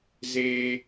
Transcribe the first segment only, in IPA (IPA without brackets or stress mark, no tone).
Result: z